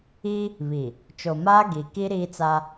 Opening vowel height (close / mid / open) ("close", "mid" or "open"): close